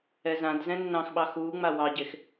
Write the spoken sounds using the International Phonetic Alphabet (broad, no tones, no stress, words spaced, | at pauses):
ɛzãdzɛ̃ nːɑ̃xɓɑ xuːŋ͡ma wɑɟex